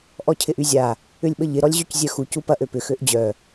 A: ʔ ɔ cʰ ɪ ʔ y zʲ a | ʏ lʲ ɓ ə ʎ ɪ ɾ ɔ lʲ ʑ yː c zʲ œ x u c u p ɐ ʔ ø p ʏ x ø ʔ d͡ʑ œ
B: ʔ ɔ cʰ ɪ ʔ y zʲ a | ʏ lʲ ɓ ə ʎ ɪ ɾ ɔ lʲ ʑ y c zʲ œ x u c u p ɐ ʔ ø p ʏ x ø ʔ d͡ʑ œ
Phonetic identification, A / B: B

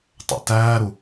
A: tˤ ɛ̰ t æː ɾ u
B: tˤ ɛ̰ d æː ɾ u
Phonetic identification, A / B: A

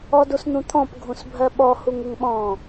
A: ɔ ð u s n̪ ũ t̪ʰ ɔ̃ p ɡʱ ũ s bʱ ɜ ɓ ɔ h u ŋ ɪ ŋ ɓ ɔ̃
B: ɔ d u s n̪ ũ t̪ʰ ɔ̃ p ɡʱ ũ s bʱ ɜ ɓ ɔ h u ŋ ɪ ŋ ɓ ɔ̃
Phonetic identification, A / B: B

